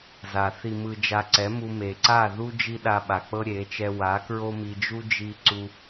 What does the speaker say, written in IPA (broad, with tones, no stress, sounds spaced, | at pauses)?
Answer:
z a˨ θ i˨ m ɯ˨ d͡ʒ a˧ ǀ ɛ˨˦ m u˧ m e˨ ǀ a˦˨ ð u˦ d͡ʒ i˦ ɗ a˧ ɓ a˨ k͡p ɤ˦ ɾʲ e˨˦ t͡ʃ ɛ˧ w a˨˦ k ɹ o˦ m i˧ d͡ʒ u˦ d͡ʒ i˦ ǀ u˦